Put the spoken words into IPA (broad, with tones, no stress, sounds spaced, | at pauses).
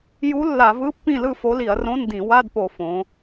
j u˧˥ lː a˧˩˧ v ɯ˧˥˧ pː ĩ˥˨ l ɯ˥˨ f o˧˥ l i˧˩˧ ɐ̯ r õ˧˥˧ n d ĩ˧˩˧ w a˧˥˧ d p o˧˩˧ f õ˩˧